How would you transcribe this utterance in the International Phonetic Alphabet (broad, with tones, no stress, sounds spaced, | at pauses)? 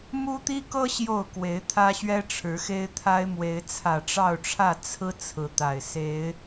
m u˦ t̪ i˦ k ɤ˦ ɕ j o˥˨ ʊ̯ k w e˨˦ ɪ̯ t̪ʰ ä˦ ɕ ɥ ɛ˦ ʈ͡ʂʰ ɻ̩˨˦ x e˦ ɪ̯ t̪ʰ a˦ ɪ̯ m w e˨˦ ɪ̯ t͡sʰ ä˨˩ ʈ͡ʂ ɑ˥˨ ʊ̯ ʈ͡ʂʰ ä˥˨ t͡sʰ ɹ̩˦ t͡sʰ ɹ̩˨˦ t̪ a˨˩ ɪ̯ s e˨˦ ɪ̯